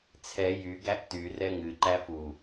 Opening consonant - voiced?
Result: no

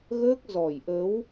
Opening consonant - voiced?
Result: yes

